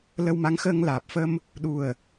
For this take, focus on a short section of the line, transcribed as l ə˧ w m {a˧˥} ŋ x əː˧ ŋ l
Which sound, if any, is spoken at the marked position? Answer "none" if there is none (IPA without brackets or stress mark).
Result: a˧˥